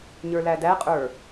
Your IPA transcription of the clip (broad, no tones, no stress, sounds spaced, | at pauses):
ɲ ə˞ l æ d æ qʼ ə˞